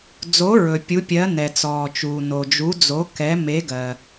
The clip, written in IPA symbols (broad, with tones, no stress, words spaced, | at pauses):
d͡zo˨˥ɹɵ˩ pʲu˨˥pʲɜ˨˥ nɛ˩t͡sɔː˩t͡ʃuː˩ no˩d͡ʒu˨˥ d͡zo˨˥ kɛ˨˥ me˨˥ɡɜ˩